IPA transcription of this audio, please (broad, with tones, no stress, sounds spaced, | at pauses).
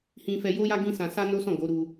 h ĩ˧ f ɛ˧ j o˦ j a˦ ɡ ĩ˦ s ã˧ s a˦ n o˦ s ɔ̃˦˨ ɡ o˨˦ ɾ u˧